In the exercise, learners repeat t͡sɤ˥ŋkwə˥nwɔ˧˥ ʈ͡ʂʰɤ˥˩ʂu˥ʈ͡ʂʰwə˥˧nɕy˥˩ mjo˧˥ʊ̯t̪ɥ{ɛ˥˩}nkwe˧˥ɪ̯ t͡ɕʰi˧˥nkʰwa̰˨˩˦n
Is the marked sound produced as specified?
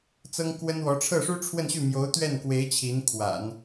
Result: yes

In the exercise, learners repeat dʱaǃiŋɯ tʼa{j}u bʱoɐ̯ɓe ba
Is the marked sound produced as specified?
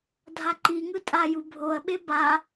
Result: yes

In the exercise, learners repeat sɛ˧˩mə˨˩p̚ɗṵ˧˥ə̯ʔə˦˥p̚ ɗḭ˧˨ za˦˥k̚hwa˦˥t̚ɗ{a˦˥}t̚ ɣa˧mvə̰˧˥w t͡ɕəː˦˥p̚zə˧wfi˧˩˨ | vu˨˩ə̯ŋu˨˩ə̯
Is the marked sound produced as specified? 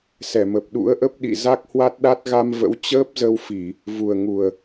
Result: yes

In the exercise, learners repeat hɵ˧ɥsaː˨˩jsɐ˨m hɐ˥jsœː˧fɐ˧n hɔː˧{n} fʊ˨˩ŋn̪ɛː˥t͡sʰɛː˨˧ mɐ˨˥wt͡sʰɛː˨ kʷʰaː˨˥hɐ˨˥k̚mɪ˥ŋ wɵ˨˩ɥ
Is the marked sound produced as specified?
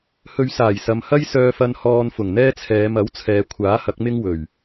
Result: yes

